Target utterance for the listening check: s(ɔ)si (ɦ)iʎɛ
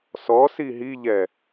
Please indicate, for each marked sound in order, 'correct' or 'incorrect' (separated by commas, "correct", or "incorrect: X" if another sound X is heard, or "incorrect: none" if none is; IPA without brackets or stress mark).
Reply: correct, correct